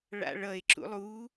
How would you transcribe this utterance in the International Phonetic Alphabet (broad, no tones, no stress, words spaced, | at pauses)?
ɭa̰ɭʌe̯ ǁṵlˠu